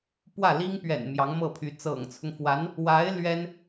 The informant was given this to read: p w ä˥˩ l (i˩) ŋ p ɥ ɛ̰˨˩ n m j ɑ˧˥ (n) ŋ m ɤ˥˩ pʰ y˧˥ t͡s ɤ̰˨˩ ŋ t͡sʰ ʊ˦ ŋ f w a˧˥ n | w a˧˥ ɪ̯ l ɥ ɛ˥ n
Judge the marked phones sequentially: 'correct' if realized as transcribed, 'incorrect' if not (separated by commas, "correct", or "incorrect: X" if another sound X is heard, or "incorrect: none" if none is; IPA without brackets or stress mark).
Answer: incorrect: i˥, incorrect: none